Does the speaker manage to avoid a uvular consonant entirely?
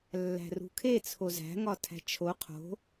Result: no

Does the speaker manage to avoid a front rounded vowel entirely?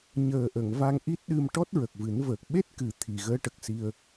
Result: yes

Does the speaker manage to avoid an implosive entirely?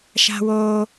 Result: yes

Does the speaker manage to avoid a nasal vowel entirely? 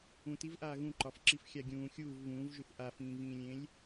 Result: no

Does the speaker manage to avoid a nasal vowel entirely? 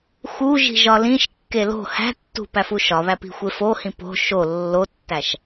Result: no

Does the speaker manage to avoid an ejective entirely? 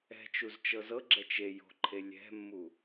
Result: yes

